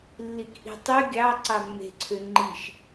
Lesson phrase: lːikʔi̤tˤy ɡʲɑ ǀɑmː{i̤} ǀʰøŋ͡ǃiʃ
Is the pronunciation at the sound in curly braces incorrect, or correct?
incorrect